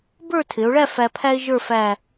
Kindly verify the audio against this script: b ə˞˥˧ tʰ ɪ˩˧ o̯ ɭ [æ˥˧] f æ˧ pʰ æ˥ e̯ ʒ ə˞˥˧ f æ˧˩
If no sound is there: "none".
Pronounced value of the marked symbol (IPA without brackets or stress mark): æ˥˧